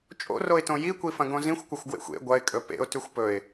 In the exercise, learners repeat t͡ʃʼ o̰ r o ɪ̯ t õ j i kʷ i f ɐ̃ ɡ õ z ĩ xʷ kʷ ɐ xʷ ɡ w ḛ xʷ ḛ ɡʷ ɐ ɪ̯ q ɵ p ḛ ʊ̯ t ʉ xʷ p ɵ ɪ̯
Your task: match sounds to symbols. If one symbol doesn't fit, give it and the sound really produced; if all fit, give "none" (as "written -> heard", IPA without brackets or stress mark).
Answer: q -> kʼ